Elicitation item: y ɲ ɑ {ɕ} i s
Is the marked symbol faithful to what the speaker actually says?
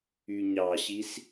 yes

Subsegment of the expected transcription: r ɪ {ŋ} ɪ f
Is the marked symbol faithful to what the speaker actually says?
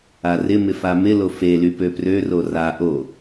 no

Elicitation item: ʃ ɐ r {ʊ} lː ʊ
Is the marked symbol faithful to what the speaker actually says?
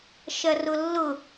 yes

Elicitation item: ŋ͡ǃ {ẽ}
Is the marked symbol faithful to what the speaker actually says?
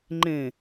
yes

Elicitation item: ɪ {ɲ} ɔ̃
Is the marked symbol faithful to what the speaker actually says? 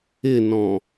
no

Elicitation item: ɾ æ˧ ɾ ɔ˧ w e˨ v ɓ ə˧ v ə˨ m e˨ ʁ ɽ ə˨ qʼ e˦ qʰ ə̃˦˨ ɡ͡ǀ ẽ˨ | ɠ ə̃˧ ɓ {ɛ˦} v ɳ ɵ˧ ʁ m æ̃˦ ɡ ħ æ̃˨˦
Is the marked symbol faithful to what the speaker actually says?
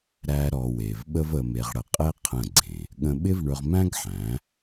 no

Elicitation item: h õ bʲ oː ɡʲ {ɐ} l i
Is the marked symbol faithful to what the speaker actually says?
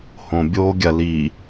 yes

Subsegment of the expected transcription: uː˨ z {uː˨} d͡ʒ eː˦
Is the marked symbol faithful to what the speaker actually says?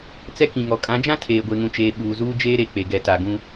no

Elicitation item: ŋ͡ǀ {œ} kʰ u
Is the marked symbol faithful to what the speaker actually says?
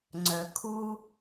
yes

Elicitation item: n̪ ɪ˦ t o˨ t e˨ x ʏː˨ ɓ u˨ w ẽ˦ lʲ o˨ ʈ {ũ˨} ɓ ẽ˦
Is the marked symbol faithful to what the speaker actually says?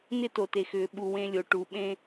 no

